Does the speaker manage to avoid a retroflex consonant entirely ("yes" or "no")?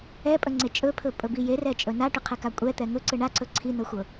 no